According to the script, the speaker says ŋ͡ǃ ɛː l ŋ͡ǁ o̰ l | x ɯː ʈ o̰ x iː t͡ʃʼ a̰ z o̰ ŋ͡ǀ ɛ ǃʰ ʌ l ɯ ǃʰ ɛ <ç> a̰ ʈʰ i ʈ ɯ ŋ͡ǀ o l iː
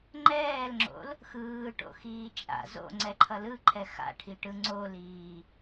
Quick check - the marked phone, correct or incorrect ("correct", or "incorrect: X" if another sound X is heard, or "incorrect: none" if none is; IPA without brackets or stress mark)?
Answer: incorrect: x